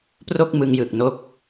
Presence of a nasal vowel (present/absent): absent